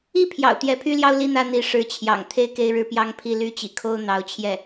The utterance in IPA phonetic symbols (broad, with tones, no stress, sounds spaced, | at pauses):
i˥˩ pʰ j ɑ̰˨˩ ʊ̯ t̪ j ɛ˧˥ pʰ y˥ l j ɑ˥ ʊ̯ l i˥˧ n̪ ä˥˩ n̪ i˧˥ ʂ ɻ̩˧˥ t͡ɕʰ j ɑ̰˨˩ ŋ t̪ʰ e˥˧ ɪ̯ k e˥˧ ɪ̯ ɻ ɻ̩˥˩ p j ɑ˥ ŋ pʰ i˥˧ l y˥˩ t͡ɕ ḭ˨˩ kʰ o˥ ʊ̯ n̪ ɑ˧˥ ʊ̯ t͡ɕʰ j ɛ˥˩